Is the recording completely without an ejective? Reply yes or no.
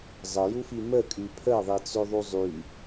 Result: no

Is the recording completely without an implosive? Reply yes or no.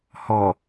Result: yes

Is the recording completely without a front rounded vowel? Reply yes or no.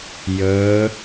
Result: yes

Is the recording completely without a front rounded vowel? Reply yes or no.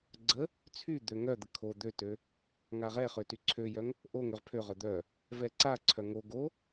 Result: no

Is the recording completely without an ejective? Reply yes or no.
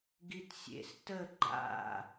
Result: yes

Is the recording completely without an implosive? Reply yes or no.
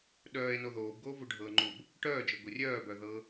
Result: no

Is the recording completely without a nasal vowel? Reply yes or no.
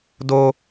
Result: yes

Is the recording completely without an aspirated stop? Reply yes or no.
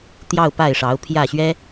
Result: no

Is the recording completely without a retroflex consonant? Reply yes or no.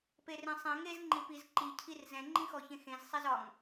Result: yes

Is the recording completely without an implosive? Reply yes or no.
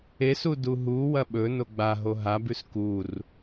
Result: no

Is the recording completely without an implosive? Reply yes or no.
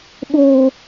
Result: no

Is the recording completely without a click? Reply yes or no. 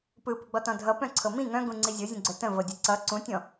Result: no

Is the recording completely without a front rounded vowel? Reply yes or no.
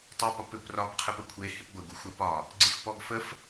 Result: yes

